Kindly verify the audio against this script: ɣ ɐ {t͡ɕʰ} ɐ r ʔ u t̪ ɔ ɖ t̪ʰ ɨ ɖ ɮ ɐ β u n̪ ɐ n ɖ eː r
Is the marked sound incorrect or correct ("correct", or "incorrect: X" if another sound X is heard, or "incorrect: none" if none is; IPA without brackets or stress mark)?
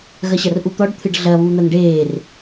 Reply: incorrect: ɕ